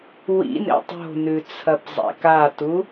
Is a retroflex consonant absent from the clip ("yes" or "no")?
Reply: yes